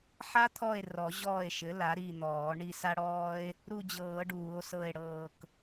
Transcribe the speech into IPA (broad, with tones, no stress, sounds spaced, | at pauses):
ħ a˥ t̪ʰ ɔ˦˨ e̯ r ɔ˨˩˦ ʑ ɔː˦˨ e̯ ʃ ɘ˩˥ l a˩˥ ɾ i˦˨ n̪ ɔː˨˩˦ ɳ i˦˨ s a˥ ɽ ɔː˥ e̯ | ɾ u˦˨ d͡ʑ ɤː˨˩˦ ɖ uː˨˩˦ o̯ s ɤ˦˨ e̯ ɽ ɤː˦˨ k